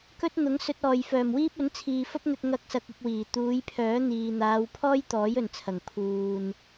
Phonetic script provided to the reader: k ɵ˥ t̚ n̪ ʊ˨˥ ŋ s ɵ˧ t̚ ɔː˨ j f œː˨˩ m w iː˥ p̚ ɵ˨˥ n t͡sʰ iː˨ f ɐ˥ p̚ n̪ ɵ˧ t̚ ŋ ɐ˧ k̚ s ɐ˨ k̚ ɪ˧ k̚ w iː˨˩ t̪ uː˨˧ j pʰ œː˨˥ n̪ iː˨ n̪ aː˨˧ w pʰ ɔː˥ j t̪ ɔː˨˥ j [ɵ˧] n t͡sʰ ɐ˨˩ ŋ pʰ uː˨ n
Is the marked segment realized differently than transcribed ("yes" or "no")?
yes